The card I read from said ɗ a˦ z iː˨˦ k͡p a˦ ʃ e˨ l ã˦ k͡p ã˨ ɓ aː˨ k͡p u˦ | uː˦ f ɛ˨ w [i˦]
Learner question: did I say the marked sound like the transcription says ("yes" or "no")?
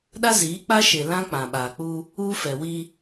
yes